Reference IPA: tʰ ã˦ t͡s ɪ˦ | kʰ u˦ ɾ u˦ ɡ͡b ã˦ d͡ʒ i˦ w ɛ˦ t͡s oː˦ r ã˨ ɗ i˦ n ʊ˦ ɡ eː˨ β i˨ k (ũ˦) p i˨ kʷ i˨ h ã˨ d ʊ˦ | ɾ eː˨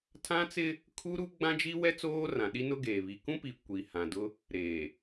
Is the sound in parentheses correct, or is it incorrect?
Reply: correct